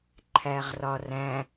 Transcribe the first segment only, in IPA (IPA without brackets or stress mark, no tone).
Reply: ǃʰ